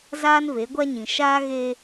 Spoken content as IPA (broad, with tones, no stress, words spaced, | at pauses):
zaː˦nve˨˦ɡʷa˦ɲĩ˨ ʃaː˦ɣe˦